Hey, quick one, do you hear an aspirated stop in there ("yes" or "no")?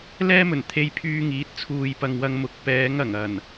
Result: yes